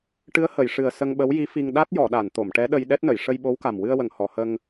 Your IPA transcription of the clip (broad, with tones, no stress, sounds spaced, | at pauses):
ʈ ɨ˧˥ ə̯ h ə˨˩˨ j ʂ ɨ˨˩ ə̯ s ə˧ ŋ ɓ ə˧˥ w j i˧˥ f i˧ ŋ ɗ a˦˥ t̚ j ɔ˨˩˨ ɗ a˨˩˨ n t̪ o˨˩˨ m ʈ ɛ˧˥ ɗ ə˧ j ɗ ɛ˦˥ t̚ n ə˨˩˨ j ʂ ə˧ j ɓ o˧˥ w k a˨˩ m w ɨ˧ ə̯ w ə˨˩˨ ŋ h ɔ˨˩˨ h ə˧ ŋ